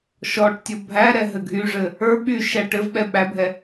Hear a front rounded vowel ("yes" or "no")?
yes